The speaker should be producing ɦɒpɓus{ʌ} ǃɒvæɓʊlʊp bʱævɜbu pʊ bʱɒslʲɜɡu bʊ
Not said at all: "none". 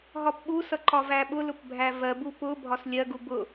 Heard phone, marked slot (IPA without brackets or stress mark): ʌ